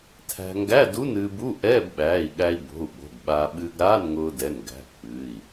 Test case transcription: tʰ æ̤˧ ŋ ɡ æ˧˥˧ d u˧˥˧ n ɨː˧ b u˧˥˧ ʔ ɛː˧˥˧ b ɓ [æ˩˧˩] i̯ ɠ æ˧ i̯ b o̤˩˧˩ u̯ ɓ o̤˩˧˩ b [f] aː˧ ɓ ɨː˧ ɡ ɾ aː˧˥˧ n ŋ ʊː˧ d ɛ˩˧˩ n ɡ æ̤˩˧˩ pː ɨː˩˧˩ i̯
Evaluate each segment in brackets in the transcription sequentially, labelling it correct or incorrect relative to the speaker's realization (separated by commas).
incorrect, incorrect